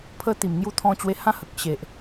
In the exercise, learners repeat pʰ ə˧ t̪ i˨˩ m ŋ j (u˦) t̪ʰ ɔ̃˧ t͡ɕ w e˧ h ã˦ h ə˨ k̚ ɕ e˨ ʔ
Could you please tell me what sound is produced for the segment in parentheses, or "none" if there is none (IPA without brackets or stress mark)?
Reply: u˧